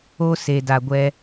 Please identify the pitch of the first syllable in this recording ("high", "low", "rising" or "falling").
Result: high